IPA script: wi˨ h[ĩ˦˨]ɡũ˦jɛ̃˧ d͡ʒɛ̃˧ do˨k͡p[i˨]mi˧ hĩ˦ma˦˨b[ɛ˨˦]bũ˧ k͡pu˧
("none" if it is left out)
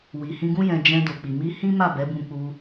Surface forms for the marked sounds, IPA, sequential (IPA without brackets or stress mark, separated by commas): ĩ˧, i˨, ɛ˨˦